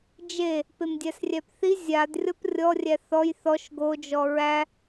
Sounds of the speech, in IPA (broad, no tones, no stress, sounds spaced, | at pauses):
d͡ʒ e | p e m dʲ æ s rʲ æ p θ i zʲ a d rʲ ɔ p rʲ ɔ rʲ æ θ ɔ j θ ɔ ʃ ɡ o d͡ʒ ɔ ɹ æ